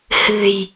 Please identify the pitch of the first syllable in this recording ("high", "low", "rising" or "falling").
low